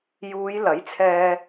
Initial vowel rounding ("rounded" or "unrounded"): rounded